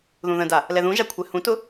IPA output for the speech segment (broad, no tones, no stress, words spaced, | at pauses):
ðũðə̃da | lɛðũʒa kʷʰɛhũtʊ